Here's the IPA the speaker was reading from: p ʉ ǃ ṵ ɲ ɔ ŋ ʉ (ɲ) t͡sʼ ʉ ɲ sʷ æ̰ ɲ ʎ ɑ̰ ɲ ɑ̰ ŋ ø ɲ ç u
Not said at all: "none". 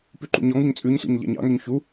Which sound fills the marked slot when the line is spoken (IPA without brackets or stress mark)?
ɲ